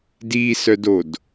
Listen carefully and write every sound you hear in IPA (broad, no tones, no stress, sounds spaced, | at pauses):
d iː s œ d o d